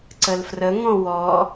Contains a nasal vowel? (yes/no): yes